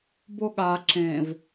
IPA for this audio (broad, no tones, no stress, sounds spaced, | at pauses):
b o ɠ a ǁ ẽ v